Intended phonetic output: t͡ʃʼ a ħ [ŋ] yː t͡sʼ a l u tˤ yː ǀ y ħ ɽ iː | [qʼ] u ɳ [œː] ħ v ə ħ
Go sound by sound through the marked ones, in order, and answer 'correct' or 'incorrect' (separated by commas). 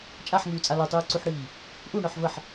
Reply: correct, incorrect, incorrect